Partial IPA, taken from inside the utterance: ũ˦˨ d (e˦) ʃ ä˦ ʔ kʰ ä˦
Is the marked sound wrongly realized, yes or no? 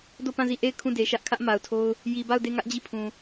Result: yes